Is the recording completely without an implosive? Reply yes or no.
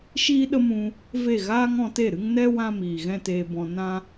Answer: no